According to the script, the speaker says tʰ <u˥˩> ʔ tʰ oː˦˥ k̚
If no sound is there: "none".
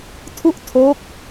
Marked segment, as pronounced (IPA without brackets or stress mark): u˥˩